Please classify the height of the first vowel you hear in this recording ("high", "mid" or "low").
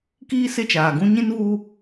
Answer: high